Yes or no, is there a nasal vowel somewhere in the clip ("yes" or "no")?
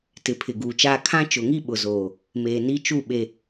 yes